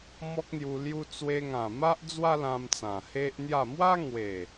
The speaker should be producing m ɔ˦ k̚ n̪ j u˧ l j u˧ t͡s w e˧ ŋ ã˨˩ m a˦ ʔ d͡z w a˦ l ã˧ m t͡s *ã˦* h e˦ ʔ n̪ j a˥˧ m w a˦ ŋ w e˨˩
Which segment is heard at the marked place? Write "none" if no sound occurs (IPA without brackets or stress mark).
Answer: ã˨˩